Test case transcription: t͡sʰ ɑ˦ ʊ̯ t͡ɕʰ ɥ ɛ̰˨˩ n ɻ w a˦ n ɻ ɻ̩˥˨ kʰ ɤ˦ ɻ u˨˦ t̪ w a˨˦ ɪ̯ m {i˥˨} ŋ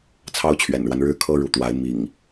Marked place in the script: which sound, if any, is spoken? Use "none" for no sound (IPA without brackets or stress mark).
ḭ˨˩